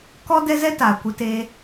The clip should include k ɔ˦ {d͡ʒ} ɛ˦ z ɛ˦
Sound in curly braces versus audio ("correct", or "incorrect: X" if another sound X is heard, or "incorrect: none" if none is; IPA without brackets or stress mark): incorrect: d